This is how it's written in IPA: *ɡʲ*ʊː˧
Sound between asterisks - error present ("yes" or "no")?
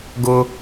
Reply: yes